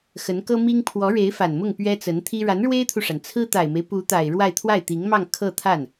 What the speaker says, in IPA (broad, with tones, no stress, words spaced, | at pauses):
xə˧˥nkɤ˥mi˥ŋ pʰwɔ˧˥ɻe˧˥ɪ̯ fa˨˩nmʊ˥˩ŋ pɥɛ˥t͡sə˧˥nt̪ʰi˥ ɻa˧˥nɻwe˥ɪ̯t̪ʰu˨ʂa˩n t͡sʰɹ̩˥t̪a˨˩ɪ̯me˦ɪ̯ pu˧˥ t̪a˨˩ɪ̯ɻwa˥˧ɪ̯ t̪ʰwa˥˩ɪ̯t̪i˧˥ŋmɑ˥˧ŋ kʰɤ˥˧t̪ʰa˥˩n